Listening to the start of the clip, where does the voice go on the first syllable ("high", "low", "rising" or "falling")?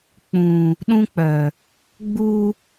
low